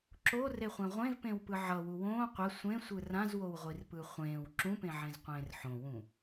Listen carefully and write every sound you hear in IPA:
ǁoreχʷẽ ʁʷẽvpẽwpɯ ʕʌwu wõː qʷɛ sʷẽ sʷɯrãz wowʁʷirpɯχʷẽːw ǁũpẽʕẽz qʷẽːrħõwũ

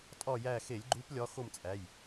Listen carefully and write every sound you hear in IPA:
tʼɒ˦˨jæ˦˨ xe˧˩˧lʲɡ͡ǃu˨˦p lʲɒ˨˦ xo˦˨mt͡sʼæ˩˧˩j

